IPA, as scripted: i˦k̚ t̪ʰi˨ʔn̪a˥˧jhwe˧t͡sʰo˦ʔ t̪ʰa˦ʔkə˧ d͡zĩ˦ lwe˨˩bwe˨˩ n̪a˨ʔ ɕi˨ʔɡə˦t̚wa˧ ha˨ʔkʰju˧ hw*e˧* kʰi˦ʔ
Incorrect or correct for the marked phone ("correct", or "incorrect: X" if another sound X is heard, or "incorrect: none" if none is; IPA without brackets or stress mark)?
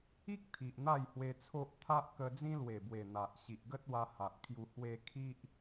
correct